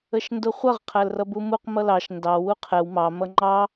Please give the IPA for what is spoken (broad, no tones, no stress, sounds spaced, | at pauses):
ə ʃ n d ʊ χʷ ʌ ʁ qʰ æ l r ʌ b u m u q m ʌ l ɑ ʃ n d ɑ w u qʰ ɛ w m ɑ m ʌ ŋ͡ǃ ɑ